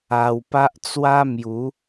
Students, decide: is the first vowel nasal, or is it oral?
oral